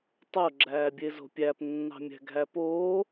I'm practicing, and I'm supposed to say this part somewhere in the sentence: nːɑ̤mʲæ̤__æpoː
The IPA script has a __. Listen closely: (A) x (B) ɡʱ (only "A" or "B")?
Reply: B